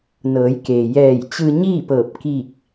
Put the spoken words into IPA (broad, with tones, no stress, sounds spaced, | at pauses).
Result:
n ɤː˩˧ j k eː˩ j ɛː˧˩ j t͡ɕ ɯː˧ ɲ iː˥˨ p ɤː˧˩ p̚ k i˧˩ k̚